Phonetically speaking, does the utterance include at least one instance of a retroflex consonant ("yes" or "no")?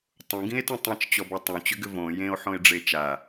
yes